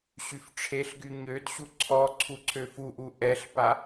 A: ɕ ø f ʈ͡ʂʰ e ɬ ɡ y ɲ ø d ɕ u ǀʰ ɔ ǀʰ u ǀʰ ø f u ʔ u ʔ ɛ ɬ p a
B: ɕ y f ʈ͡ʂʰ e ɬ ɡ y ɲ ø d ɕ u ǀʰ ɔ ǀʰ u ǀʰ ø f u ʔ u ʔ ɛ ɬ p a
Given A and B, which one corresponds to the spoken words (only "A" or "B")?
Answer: B